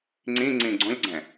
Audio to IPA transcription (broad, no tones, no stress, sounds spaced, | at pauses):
ŋ͡ǀ ĩ ŋ͡ǀ ĩ ɡ͡ǀ õ lʲ ɡ͡ǀ ɛ̃